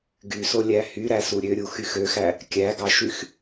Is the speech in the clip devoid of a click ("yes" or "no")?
yes